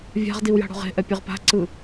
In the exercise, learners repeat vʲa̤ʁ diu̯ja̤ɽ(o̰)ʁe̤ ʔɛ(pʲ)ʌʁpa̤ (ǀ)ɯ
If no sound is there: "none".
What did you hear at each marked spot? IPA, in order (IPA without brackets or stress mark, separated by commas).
o̤, pʲ, ǀ